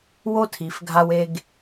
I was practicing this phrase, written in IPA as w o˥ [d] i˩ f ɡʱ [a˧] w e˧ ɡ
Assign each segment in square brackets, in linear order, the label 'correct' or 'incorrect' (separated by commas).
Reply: incorrect, correct